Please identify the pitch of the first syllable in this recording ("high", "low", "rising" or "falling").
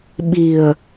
low